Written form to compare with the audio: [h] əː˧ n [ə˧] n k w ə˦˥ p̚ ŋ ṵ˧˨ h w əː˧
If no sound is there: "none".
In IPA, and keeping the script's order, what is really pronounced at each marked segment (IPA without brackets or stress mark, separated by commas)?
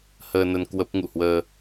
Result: h, ə˧